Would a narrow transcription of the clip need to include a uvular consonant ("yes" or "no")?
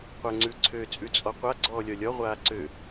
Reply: yes